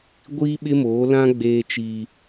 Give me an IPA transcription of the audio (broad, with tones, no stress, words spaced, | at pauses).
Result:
ɡʷiː˦ɓɪ˦moː˨˦lã˦ ɡ͡beː˦t͡ʃiː˦